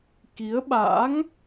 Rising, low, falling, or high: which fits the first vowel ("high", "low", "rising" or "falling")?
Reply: rising